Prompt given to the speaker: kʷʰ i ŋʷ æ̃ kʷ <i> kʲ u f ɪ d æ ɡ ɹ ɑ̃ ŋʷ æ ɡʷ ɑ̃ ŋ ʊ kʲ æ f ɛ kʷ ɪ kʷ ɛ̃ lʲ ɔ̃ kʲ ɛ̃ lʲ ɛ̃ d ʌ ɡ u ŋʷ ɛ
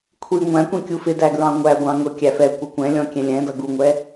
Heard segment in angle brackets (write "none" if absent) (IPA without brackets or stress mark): ĩ